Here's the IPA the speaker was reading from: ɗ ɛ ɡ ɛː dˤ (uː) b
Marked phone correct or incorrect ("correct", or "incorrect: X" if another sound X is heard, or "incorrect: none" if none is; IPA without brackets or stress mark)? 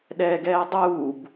correct